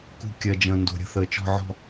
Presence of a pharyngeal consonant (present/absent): present